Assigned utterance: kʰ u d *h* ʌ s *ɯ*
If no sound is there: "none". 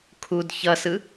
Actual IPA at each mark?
ç, ɯ

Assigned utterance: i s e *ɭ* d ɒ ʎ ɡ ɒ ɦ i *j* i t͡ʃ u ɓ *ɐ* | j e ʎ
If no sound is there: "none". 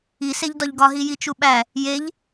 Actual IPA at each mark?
ʎ, j, æ

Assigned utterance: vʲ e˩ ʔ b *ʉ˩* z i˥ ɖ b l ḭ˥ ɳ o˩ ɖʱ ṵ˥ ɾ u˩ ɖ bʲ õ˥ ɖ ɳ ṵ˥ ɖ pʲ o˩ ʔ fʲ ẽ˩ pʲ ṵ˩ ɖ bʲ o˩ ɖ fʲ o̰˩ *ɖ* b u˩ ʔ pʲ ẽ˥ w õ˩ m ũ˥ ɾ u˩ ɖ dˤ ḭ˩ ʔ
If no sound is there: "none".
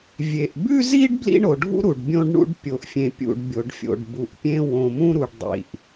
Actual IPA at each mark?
ʉ˥, ɖ

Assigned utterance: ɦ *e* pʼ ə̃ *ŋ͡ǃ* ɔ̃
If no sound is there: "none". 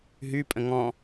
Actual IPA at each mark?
y, ŋ

